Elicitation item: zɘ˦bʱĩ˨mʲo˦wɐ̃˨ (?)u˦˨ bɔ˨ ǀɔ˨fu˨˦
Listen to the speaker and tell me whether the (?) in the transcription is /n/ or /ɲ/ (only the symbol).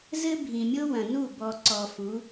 n